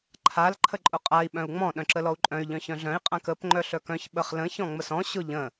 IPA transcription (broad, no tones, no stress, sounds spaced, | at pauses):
ǃʰ a l ǃʰ ə ǃʼ ʊ qʼ a i̯ ɓ œ̃ u̯ ŋ͡m ɔ̃ ɗ œ̃ ǁ ə l ɔ u̯ ǃʼ œ̃ y̯ ʎ œ̃ ç œ̃ ɮ œ̃ i̯ qʼ ã k ə p ŋ͡ǃ œ ɬ œ k œ̃ ç ɓ ə χ l ə̃ ç ɔ̃ ŋ͡m ə s ɔ̃ ɕ ʊ ʎ ə̃